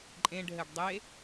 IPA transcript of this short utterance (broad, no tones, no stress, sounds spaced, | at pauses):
ǃʼ ẽ ɖ ɦ ɘ ɖ dˤ e